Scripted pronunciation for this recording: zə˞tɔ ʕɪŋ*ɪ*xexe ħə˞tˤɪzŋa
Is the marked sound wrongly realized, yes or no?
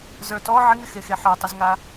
no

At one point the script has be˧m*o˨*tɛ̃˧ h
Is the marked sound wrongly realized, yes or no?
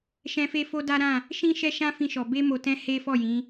no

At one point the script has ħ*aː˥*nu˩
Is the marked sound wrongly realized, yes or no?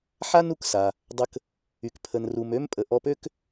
yes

